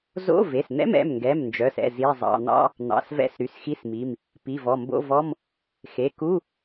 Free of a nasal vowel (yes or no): yes